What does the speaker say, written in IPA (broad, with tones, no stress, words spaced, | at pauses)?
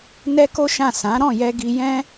nɛ˦ko˦ʃã˦˨ sã˨˦ɾɔ̃˦˨jɛ˧ɡi˧ jɛ̃˧